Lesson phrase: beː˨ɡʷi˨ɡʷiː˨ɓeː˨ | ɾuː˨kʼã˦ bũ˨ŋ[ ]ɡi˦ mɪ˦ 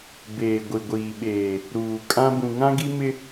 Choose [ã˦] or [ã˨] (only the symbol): ã˦